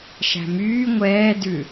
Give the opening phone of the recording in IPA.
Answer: ʃ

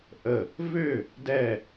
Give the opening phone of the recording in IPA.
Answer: ʔ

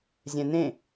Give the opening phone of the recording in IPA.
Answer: zʲ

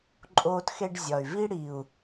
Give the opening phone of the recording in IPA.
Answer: ǃʼ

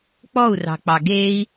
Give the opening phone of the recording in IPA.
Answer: k͡p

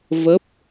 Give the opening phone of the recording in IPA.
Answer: v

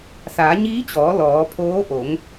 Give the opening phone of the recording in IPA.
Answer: s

